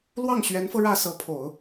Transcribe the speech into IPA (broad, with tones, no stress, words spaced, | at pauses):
lwɑ˥˩ŋɕɥɛ˧˥nfɤ˧ ɻä˥˩sɤ˧˥pʰo˨˩˦ʊ̯